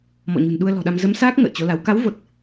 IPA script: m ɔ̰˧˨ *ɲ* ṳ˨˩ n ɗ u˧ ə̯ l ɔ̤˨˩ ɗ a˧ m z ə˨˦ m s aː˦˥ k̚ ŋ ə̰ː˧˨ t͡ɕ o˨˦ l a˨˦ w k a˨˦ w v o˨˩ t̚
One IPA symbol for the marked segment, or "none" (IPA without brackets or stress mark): ɲ